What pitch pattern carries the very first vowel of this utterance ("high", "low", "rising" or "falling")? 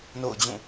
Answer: falling